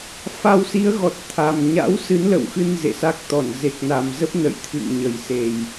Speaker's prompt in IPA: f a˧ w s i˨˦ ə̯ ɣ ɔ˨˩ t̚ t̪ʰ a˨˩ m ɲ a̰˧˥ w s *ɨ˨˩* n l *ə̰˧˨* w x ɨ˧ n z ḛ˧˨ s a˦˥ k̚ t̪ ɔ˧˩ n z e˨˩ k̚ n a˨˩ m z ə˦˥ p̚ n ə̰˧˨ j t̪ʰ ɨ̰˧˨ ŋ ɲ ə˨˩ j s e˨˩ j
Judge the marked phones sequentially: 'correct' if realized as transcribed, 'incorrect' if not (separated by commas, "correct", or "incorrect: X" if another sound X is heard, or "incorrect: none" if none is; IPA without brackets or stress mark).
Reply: incorrect: ɨ˨˦, correct